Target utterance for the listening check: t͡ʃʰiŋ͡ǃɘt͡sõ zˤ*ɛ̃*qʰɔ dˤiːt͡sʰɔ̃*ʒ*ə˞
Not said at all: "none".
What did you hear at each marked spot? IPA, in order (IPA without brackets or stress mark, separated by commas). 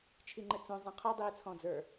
ɛ̃, d͡z